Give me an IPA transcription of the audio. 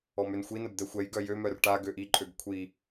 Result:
ɔ m ø n xʷ i n ə b d̪ ɛ xʷ ɛ j ɡ œ j ø m œ r ʈ a ɡ ø ʔ i ǃʼ ø ɡ kʷʰ i

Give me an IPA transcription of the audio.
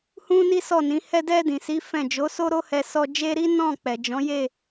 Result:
h ũ˦ n i˦ s ɔ˦˨ n ĩ˨˦ h ɛ˧ d ɛ˧ d ĩ˨ s i˨˦ f ɛ̃˦˨ d͡ʒ o˨˦ s o˦ ɾ o˦ h ɛ˧ s ɔ˧ d͡ʒ e˦ ɾ i˦ n ɔ̃˦˨ k͡p ɛ˨ d͡ʒ ɔ̃˨˦ j e˦˨

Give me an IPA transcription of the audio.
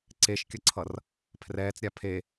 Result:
ǀ e ʃ kʲ ʌ ǀʰ ʌ r | pʰ r ɛː t͡s ɾʲ a pʰ e

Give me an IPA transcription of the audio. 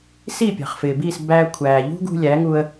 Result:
s i˥˩ pʲ ɑ̤˩ χ f ɪː˩ b i˥˩ s b æ˧ kʷʰ æː˩ ʎ ṳ˥ ɡ ṳ˧ lʲ æ˩˥ ŋ u˧ ə̯

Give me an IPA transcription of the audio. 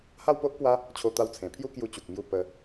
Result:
h a˥˧ w p o˦ ʔ p w a˦ | t͡ɕʰ o˧ t̪ a˧ w t͡sʰ ẽ˨˩ pʰ j u˦ k j u˧ t͡ɕ u˨ k̚ m j u˧ p ə˧

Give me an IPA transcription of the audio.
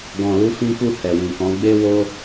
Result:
ɡ ɔ̃˨ l u˨˦ f ĩ˧ k u˧ h ɛ˨ w ĩ˨ k ɔ̃˨˦ ɡ͡b e˧ w o˧

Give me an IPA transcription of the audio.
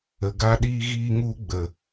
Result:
ə˨ ɡ a˧ ɗ iː˧ ɣ iː˧ ŋ u˧ ɡ͡b ə˨

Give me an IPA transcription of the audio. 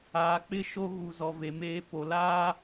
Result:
aː˨ k͡p ɪ˦ ʃ o˦ ɣ u˨ z ɔ˨ v e˨ m eː˦ p o˨ l aː˦

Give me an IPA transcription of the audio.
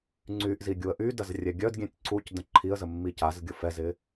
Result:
ŋ͡ǀ y ʔ z i ɡʲ u ə̯ ʔ y d ɐ z rʲ ɛ ɡʲ œ d ɡʲ ɛ̃ tʲ ǀ u c d ə̃ ǃʰ i ə̯ z ə mː i c a z ɡʲ ʊ f ɛ z ɪ

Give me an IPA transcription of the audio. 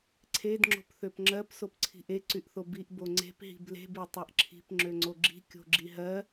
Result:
ǀʰ e d ŋ͡ǁ o̤ p θ ø p ŋ͡ǁ ɜ p s o p ǀʰ i̤ ʔ e ǀ y ʔ θ o b i ʔ b o ŋ͡ǀ e̤ p ɦ i̤ b l e̤ b e tˤ ɜ ʔ ǁʰ i̤ p ŋ͡ǁ ø ŋ͡ǀ o ɡ͡ǁ i̤ kʲ o̤ ɡ͡ǁ i ɦ ɜ

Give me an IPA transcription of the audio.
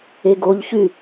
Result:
e ɡ o ʎ ç y

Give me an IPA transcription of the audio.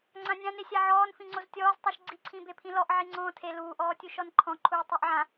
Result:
ŋ͡ǀ ã nʲ ã n e sʲ a ʕ ɔː n f ĩ ŋ͡ǀ o z tʲ ɔː z tˤ u ʃ ɡ͡ǀ i ǀʰ ĩ b e pʰ ĩ l ɔ ʔ ʕ i ŋ͡ǀ ɔ̃ː tʰ e l uː ʔ ɔː tʲ u ʃ ɔ n ǃʰ ɔ̃ ǃʰ uː tˤ o ʔ ʕ ã

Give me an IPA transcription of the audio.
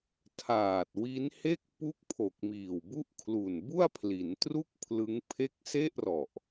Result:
tʰ aː˨˩ t̚ w i˦˥ n h e˥˩ k̚ p u˥˩ k̚ pʰ o˨˩ k̚ m iː˨˩ w b u˥˩ ʔ kʰ l u˨˩ n b u˥˩ a̯ pʰ l i˩˦ n t r u˥˩ k̚ pʰ l ɯ˦˥ ŋ pʰ e˥˩ k̚ s e˥˩ ʔ r ɔ˨˩ ʔ

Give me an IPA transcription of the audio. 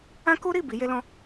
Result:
ã˦ k u˦ ɾ i˦˨ b i˨˦ j e˦ l ɔ̃˦

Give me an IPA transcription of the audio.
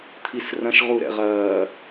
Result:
t̪ʰ i s r ɐ̃ ʃ ʁ u ɾ ɛ̰ ʁ ɐː

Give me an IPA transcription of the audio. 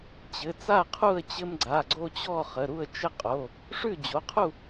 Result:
t͡ɕ ɘ˩˧˩ t͡s a˥˨ qʰ u˥˨ ə̯ t͡ɕ ɘ˦ m ɡ͡ǀ a˩˧˩ ɡ͡ǀ o˦ t͡ɕ ɔ˥˨ χ ə˩˧˩ ɾ u˥˨ ə̯ t͡ʃ ɘ˥˨ qʼ o˩˧˩ | ʂ ʉ˥˨ d͡ʑ o˩˧˩ qʰ u˥˨

